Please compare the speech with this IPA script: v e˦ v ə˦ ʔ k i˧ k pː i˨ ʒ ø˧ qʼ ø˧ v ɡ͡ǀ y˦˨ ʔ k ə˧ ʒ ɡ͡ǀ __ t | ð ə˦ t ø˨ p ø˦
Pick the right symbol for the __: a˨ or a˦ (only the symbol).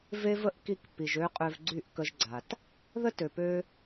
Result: a˨